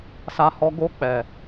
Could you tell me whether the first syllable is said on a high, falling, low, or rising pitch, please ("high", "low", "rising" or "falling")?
low